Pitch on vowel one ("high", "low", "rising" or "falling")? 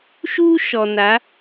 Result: high